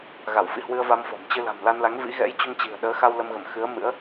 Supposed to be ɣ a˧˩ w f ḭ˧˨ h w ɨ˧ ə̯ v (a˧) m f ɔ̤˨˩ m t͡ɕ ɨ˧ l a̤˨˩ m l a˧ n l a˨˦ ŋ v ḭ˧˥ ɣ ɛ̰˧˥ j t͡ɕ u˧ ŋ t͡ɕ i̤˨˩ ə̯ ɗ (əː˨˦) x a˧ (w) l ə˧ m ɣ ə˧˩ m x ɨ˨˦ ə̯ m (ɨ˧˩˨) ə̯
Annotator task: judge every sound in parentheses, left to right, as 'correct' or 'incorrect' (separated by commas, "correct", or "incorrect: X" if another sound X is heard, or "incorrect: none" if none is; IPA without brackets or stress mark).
correct, correct, correct, incorrect: ɨ̰˧˥